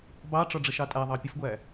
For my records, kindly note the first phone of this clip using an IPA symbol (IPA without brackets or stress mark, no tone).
b